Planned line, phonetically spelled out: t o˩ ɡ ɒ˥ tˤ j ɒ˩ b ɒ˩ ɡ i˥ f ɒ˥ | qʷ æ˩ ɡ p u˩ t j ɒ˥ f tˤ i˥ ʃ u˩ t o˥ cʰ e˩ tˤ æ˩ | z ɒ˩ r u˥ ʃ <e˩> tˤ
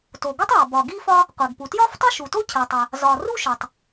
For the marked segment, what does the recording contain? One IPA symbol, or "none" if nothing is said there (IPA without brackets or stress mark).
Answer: e˩